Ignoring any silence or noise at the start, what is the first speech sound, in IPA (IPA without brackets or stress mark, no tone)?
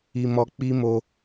i